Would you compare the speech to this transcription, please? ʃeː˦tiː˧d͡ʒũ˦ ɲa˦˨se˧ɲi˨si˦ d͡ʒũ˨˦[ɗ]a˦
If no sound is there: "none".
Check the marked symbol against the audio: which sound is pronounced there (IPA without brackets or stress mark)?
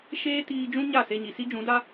d